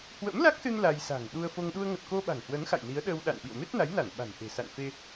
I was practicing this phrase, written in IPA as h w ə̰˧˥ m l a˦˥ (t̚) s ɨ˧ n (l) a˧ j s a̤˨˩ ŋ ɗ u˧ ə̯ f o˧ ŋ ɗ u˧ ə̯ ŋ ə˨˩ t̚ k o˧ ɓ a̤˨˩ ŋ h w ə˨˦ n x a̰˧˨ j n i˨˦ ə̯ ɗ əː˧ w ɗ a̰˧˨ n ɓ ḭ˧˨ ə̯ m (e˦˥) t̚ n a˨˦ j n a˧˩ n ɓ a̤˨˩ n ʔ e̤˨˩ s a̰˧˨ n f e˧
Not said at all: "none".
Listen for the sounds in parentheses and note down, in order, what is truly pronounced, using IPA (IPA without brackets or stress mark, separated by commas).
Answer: k̚, l, e˦˥